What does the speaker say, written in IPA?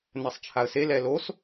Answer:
n ɛ sˤ t͡ʃʰ a ə̯ s e l ɛ l o s

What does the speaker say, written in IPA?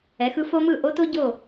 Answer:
ɛ˩˥ x ɯ˥ f o˥ m ɯ˥˩ ʔ o˥ t o˥ ɟ o˥˩

